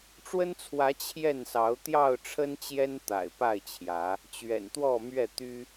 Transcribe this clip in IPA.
ʈ͡ʂwə˦nt͡sʰwä˨˦ t͡ɕʰjɛ˥˨nsɑ˨˦ʊ̯ t̪jɑ˥˨ʊ̯ʈ͡ʂʰə˦n t͡ɕjɛ˦nt̪a̰˨˩ɪ̯pa˥˨ɪ̯t͡ɕʰjä˨˦ | t͡ɕɥɛ̰˨˩nt̪wɔ˥˨mɥɛ˥˨t̪y˦

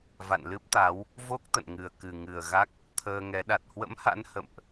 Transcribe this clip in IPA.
va̰˧˨nlɨ˦˥p̚t̪a˨˦w | vo˦˥k̚ t̪ə̰˧˨nŋɨ˨˩ə̯kɨ˨˩ ŋɨ˨˩ə̯ɣa˦˥k̚ | t̪ʰəː˧ŋɛ˨˦ ɗa˨˩t̚hwə̰˧˥mha̰˧˥n hə̰˧˨mʔ

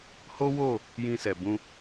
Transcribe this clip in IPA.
ho˦wo˦˨ | jĩ˧sɛ˨ bũ˧

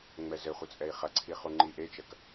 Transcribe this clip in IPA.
ŋ͡mɛzɘχʷɘ t͡sʼɛi̯χɐǀʰi χuŋ͡ǃiʔet͡ʃɐk

